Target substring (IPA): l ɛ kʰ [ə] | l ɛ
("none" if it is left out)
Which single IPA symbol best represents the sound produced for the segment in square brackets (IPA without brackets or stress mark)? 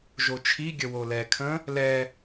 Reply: ə̃